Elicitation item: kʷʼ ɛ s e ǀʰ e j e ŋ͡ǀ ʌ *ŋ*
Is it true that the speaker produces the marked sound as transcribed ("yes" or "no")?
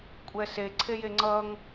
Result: yes